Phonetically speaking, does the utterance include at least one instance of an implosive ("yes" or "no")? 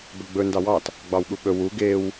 yes